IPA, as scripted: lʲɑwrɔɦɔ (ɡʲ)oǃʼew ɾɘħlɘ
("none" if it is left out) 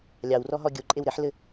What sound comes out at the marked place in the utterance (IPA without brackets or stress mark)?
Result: ɡʲ